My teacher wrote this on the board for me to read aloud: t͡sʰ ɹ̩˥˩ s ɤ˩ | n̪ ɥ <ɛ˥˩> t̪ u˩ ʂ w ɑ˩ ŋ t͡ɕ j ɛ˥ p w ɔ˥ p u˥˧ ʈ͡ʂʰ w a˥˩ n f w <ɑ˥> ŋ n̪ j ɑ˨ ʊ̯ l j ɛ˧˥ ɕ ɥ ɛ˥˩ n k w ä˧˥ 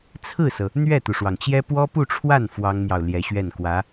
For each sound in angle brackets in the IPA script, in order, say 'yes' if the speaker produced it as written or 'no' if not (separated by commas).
yes, yes